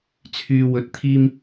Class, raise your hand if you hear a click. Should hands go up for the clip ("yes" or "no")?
no